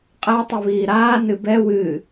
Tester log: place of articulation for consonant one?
uvular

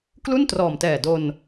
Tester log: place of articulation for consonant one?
velar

